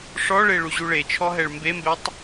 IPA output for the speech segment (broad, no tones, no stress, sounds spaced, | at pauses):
ʂ ɔ ɭ e ɭ u ʑ u ɭ e t͡ʃʰ ɔ ɦ ɛ ɭ m b e m b ɛ tˤ